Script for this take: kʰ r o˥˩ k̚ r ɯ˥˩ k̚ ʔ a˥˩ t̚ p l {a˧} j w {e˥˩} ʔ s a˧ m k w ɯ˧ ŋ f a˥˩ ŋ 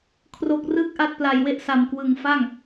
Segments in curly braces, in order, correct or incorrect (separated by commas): correct, correct